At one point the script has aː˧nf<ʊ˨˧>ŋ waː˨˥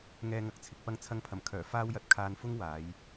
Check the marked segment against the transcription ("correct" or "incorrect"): incorrect